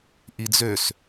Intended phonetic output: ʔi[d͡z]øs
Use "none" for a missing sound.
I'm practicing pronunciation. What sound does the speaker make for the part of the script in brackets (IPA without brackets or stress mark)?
d͡z